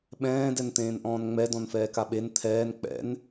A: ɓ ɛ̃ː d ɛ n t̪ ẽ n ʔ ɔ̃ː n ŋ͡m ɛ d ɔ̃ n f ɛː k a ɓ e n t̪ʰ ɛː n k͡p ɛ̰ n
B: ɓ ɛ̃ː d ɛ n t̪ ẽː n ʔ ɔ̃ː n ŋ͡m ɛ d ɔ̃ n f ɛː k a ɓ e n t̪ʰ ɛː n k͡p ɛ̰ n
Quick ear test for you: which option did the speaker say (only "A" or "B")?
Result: B